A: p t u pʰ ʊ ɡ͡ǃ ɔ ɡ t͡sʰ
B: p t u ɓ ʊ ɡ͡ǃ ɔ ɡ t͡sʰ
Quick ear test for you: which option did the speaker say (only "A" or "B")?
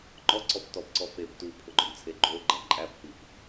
A